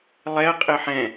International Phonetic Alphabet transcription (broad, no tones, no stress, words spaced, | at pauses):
lˠɛɐ̯qʼɘ ħɛ̃